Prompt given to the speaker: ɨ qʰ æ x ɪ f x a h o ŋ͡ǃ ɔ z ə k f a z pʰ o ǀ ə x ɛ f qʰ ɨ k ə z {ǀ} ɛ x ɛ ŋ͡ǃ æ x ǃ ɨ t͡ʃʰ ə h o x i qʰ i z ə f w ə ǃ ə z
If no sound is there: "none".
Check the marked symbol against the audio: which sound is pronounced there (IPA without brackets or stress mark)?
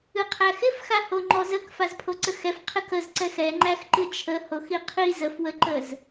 ǀ